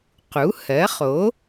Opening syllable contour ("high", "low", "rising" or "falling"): rising